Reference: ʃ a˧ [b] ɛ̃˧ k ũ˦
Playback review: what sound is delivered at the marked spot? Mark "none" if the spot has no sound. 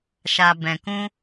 b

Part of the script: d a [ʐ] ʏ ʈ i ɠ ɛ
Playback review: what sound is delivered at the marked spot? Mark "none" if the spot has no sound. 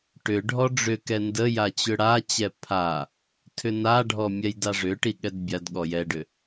ʐ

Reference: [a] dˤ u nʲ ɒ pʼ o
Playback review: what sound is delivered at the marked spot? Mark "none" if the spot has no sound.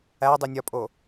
æ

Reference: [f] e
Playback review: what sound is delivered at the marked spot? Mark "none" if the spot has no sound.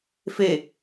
f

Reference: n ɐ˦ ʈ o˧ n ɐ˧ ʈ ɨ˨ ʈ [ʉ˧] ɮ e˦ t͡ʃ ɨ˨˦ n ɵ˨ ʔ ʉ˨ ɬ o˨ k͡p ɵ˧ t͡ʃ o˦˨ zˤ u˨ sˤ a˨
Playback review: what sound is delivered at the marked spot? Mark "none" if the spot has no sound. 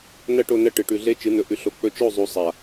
ʉ˧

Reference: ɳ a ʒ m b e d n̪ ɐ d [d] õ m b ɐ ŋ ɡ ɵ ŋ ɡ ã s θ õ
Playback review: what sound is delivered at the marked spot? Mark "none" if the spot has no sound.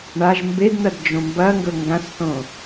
d͡ʒ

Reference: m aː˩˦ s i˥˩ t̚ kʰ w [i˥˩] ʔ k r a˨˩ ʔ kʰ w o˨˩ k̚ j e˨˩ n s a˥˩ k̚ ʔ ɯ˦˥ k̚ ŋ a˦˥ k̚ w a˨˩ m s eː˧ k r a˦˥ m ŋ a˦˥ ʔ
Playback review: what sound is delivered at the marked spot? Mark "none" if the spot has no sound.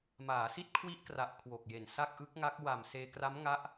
i˦˥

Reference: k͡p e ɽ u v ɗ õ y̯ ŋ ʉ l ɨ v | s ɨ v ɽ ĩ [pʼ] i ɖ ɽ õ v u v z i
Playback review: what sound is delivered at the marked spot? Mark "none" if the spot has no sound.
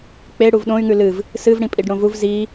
pʼ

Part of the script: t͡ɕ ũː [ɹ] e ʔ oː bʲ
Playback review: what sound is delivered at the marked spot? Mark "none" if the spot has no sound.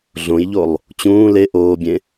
l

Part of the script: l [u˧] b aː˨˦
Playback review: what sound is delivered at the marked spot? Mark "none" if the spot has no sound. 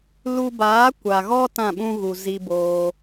u˧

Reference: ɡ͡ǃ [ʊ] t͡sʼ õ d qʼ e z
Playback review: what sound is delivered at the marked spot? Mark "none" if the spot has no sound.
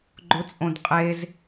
ʊ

